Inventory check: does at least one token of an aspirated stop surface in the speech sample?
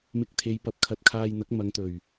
yes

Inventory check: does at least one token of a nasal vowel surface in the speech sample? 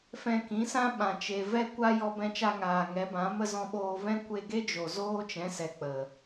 yes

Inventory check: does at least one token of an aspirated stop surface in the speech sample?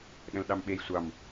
no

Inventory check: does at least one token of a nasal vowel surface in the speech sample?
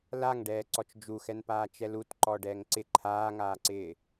no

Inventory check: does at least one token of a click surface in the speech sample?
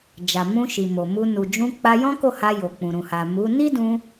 no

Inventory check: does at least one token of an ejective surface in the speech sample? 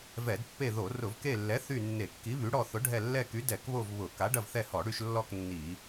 no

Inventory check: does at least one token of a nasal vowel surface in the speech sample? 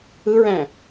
yes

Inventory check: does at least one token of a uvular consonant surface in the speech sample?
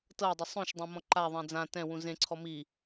no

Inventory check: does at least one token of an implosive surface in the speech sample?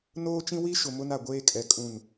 no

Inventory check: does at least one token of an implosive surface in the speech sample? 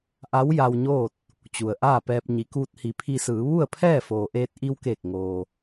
no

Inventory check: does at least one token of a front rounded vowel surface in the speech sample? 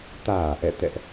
no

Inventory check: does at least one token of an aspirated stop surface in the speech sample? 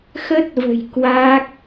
no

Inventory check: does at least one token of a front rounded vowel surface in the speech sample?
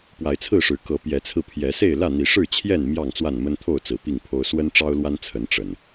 no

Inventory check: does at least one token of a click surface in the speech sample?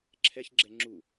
yes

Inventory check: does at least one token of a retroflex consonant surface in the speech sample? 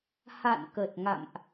no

